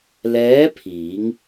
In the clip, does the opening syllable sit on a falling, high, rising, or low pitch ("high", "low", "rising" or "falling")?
rising